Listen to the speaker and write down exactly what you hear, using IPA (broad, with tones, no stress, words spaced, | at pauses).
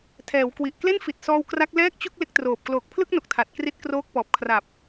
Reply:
tʰɛː˩˦wkwi˨˩ʔ kle˥˩nfi˨˩t̚sɔː˧w kra˦˥k̚lɛː˥˩k̚t͡ɕu˥˩k̚ le˦˥k̚troː˨˩p̚ kloː˨˩k̚pʰlɯ˥˩k̚no˨˩k̚ tʰa˨˩t̚kri˦˥t̚kroː˦˥k̚ pɔː˨˩p̚ kʰra˨˩p̚